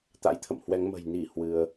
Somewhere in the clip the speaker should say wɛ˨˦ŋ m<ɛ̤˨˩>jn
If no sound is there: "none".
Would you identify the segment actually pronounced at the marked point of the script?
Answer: ə̤˨˩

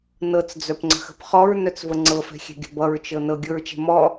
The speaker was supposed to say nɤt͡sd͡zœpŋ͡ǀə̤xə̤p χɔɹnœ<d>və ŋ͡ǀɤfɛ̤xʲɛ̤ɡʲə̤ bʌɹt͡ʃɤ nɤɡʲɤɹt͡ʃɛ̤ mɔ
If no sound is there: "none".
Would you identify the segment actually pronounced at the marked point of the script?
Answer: t͡s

